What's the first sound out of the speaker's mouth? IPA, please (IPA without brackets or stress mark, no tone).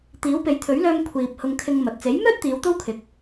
t̪